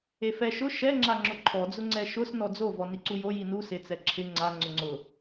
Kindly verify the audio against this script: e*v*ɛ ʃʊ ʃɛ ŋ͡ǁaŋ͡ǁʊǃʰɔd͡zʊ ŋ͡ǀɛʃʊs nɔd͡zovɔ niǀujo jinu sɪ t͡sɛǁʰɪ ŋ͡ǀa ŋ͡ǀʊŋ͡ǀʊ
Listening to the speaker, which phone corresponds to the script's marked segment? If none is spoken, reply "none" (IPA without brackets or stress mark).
f